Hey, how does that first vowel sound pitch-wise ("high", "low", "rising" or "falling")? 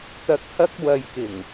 low